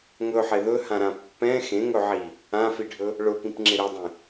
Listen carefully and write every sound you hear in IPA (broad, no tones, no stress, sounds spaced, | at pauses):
ŋ ɵ ħ e ð ɵ h ã ɾ ã pː ɛ̃ x ẽ ŋ ɵ ʕ i | ã f i ɖʱ ɵ | ɭ ʊ p ĩ p ŋ͡ǁ ɪ ɾ ɵ dˤ ẽ